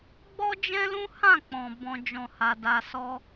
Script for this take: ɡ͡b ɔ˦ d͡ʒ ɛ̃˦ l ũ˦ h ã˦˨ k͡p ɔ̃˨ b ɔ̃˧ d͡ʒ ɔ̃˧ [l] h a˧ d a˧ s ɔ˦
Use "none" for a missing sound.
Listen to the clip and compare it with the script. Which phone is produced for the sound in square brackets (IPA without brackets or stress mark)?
none